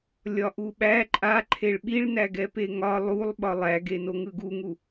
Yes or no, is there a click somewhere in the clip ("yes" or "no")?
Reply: yes